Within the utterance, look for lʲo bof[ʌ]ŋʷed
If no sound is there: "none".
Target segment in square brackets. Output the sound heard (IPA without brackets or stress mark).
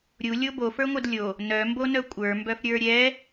ə˞